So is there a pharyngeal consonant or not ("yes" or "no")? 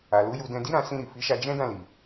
no